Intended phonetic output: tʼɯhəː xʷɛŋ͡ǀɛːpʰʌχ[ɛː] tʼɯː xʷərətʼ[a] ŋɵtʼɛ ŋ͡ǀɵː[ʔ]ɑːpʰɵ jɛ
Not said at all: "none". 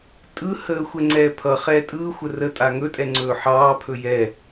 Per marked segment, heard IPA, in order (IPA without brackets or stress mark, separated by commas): ɛː, a, ħ